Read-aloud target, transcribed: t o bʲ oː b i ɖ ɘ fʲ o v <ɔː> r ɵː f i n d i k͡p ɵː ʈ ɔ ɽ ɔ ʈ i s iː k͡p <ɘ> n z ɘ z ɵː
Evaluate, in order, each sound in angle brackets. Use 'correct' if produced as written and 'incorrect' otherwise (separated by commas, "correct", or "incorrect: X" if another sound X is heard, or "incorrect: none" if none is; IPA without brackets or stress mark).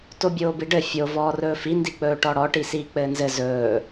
correct, incorrect: ɘː